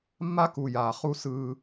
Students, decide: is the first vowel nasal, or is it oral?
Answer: oral